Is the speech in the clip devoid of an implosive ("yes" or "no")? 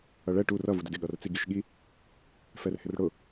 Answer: no